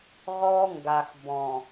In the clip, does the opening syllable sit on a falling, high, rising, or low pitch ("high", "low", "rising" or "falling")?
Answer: high